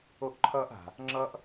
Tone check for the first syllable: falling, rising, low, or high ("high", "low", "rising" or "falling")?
high